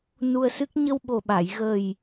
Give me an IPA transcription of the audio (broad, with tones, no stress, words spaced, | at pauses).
nu˧ə̯sɨ˦˥k̚ ɲə˧wɓo˨˩ɓa˨˩˨j ɣə˨˩j